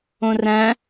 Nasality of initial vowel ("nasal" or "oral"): nasal